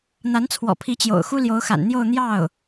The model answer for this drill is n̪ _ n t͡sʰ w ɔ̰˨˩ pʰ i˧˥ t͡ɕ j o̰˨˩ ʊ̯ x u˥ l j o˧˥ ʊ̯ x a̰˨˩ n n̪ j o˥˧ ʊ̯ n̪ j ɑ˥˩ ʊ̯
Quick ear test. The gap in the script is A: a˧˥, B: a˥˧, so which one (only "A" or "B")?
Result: A